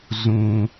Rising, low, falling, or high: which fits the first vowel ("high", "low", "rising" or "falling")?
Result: low